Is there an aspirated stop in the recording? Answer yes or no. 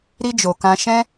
no